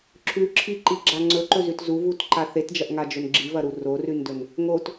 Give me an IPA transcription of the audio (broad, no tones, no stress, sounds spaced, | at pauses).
ǁʰ ʉ ǁʰ i ǃ i ɡ͡ǁ a ŋ͡ǀ ɵ ǃ ɵ z ʉ t z u v u t ǃ a θ e t d͡ʒ ɐ ʔ ŋ a d͡ʒ ɵ n ɡ͡ǁ i v ɐ ɾ u r o r ʉ n d ɵ n | ŋ o t